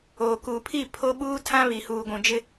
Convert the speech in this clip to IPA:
oː˨ k uː˨ pʰ i˦˨ pʰ o˦ ɓ uː˦ tʰ ã˦ β i˨ h uː˨ ɡʷ ũ˨ d͡ʒ ɪ˦

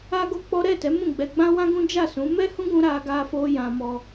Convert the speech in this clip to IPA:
a˦ ɡ o˦ k͡p ɔ˦ ɾ ɛ˦˨ t ɛ˨˦ m ũ˦˨ ɡ͡b ɛ˧ ɡ͡b ã˦ w ã˦ ɡ ũ˦ d͡ʒ a˦˨ s ũ˨˦ m ɛ˦ h ũ˦ ɡ ũ˧ ɾ a˧ ɡ a˧ f o˧ j ã˧ m ɔ˧

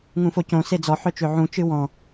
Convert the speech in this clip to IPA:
ŋ ũ f o c õ s e d͡z ɔ ħ œ t͡ʃ ø ʕ ũ t͡ʃ ɨ w ɔ̃

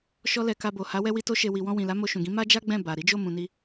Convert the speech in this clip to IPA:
ʃ ɔ˦ l ɛ˧ k a˧ b o˨ h a˨˦ w ɛ˦ w i˦ t o˦ ʃ e˧ w i˨ w ɔ̃˧ w ĩ˨ l a˨˦ m o˧ ʃ ũ˨ ɡ ĩ˨˦ m a˦ d͡ʒ a˦ ɡ͡b ɛ̃˦˨ b a˨ ɾ i˨˦ d͡ʒ o˦˨ m ũ˧ n i˦

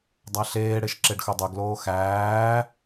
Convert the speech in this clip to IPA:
dˤ æ ɬ eː ɽ e ʃ ǁ e ɖ x ɵ dˤ œ ɡ l oː x æː

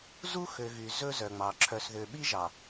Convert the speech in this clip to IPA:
z u˦ x ø˨ ɣ y˨ z ɵ˦ z œ˨ ŋ͡m ɑ˨ ǁʰ œ˨ s ð ø˨ ɓ i˦ ʒ ɑ˨

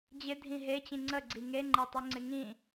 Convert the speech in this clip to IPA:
d͡ʑ ɪ dʱ ĩ ɦ e t͡ɕ ĩ ŋ͡ǀ ə ɡ͡ǀ i ŋ e ŋ͡ǃ e tˤ y ŋ͡ǀ ɪ ŋ ĩ

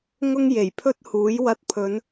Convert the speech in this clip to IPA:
ŋ ʊ˥ ŋ j e˨˩ j pʰ ɵ˥ t̚ h uː˨˥ j w ɐ˧ t̚ pʰ ɵ˨˧ n

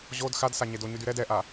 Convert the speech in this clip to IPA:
ʑ o d x a d s a ɲ e d o ɲ y d y ɾ ɛ d ɛ ʔ a

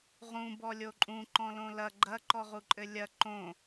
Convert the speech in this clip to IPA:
ʁ ũ b ɔ lʲ o ǃʼ ũ ǃ ɔ̃ l õ l ɐ ɡ͡ǃ ɐ ǃ ɔ ʁ u ǃʼ ɘ lʲ ɐ ǃ õ

